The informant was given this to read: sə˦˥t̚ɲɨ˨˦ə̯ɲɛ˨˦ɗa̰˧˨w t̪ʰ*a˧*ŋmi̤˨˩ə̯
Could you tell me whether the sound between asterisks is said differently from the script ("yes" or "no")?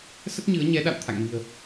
yes